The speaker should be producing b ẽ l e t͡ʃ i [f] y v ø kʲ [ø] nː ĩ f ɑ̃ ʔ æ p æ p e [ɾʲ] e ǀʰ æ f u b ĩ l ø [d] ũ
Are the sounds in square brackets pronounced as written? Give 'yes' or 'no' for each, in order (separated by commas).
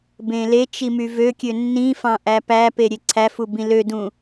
no, yes, yes, yes